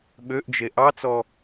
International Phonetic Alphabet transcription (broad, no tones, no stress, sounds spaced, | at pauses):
ɓ ø ʔ d͡ʒ e ʔ ɑ t͡s ɔ